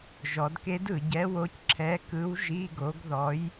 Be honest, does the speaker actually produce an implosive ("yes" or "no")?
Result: no